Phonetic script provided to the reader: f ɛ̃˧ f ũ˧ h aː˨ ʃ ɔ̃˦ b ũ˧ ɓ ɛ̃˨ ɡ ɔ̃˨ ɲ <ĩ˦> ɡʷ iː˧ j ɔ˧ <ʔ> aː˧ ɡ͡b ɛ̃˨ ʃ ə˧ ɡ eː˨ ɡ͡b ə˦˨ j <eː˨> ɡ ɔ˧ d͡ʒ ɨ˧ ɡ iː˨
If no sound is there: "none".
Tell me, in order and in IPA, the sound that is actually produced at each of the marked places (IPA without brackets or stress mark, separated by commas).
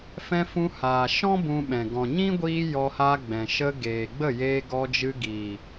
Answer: ĩ˦, h, eː˧